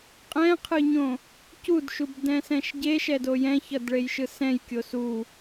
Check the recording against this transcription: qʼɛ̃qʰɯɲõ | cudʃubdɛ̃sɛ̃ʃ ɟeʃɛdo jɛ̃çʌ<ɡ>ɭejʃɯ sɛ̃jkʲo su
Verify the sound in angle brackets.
incorrect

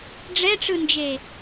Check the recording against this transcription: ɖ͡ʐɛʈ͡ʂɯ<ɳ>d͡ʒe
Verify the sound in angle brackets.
incorrect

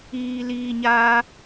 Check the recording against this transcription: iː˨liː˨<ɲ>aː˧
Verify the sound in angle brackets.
correct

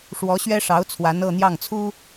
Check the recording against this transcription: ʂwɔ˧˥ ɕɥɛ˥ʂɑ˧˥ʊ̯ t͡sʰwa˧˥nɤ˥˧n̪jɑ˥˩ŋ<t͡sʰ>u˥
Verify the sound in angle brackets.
correct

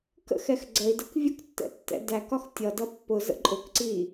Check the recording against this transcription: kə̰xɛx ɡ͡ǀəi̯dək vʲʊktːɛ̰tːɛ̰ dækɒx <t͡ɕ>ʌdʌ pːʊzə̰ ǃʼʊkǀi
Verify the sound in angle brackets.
incorrect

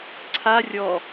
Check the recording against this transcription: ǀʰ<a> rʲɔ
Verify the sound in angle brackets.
correct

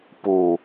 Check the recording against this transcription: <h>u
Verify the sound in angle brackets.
incorrect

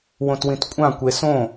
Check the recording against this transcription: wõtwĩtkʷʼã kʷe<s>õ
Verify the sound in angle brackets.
correct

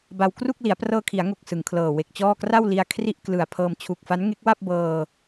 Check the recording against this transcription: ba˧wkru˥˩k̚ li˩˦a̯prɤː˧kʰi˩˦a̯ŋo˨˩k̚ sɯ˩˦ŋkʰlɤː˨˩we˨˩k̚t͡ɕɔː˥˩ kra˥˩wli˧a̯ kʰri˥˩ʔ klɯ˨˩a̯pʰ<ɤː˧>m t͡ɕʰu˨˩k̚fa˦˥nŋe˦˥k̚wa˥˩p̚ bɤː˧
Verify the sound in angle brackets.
correct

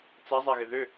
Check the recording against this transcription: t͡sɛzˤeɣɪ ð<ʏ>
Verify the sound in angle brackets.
correct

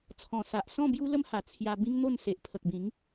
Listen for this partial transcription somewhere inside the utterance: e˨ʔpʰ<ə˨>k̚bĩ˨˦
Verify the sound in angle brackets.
correct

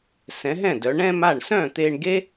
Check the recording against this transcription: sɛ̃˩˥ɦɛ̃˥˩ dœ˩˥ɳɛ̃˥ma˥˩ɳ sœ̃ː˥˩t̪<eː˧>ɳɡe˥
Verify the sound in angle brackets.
correct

